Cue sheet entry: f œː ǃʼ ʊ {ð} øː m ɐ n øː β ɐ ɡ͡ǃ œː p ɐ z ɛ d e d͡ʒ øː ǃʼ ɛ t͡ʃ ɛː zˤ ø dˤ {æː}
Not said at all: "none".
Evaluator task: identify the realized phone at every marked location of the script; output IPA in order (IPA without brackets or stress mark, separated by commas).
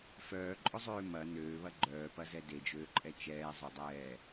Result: zˤ, ɛː